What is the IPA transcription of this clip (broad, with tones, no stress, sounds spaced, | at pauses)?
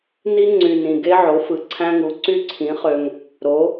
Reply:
n i˦˥ ŋ͡ǀ y˨˩ n ĩ˨˩ ɡ e˦˥ ʕ o˩˥ f ɯ˩˥ ǀʰ æ̃˦˥ ŋ u˩˥ ǀ y˦˥ ǀʰ ĩ˩˥ χ ø˨˩ ŋ | ɾ o˩˥